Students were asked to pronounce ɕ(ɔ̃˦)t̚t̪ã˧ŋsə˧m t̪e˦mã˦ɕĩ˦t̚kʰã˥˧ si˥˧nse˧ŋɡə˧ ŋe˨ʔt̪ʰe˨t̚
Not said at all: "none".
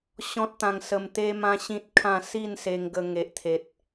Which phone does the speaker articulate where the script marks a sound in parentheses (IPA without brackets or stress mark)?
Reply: ɔ̃˦